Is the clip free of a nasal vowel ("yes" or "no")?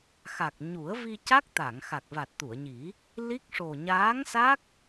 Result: yes